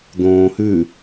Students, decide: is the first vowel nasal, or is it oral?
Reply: nasal